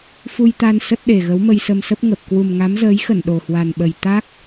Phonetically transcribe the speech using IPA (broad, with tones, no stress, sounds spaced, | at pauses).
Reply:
f u˧ j t̪ a˧ n s ə˦˥ t̚ ɗ e˨˩ ɣ ə˨˦ w m ə˧ j s ə˧ m s ə˦˥ p̚ ŋ ə˨˩ p̚ k w u˨˩ m ŋ a˨˦ m z əː˨˦ j x ə˧˩ n ɗ o˨˩ h w a˨˩ n ɓ ə˨˩ j t̪ a˦˥ k̚